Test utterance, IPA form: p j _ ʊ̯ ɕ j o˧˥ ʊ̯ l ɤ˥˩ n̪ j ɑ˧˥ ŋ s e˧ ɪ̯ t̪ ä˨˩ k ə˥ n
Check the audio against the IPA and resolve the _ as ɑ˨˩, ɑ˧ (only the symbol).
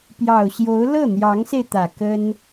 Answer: ɑ˨˩